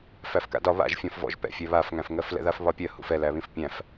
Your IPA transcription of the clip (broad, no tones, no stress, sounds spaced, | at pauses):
f æ f k a̰ d ɒ β a̰ ʒ fʲ ɔ̃ f v ɔ̰ ʒ p ɛ̰ fʲ ɛ β a f ŋ æ̃ f ŋ ɜ f l ɛ̰ ð a f β ɒ pʲ ɜ h ṵ f ɛ l æ β ĩ f pʲ æ̃ f